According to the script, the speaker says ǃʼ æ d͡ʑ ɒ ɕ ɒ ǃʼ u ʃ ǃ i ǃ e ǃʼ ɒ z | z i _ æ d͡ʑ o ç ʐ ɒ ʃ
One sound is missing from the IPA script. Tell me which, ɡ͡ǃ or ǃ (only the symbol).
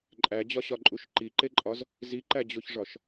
ǃ